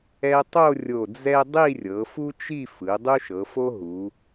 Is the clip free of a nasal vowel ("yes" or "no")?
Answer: yes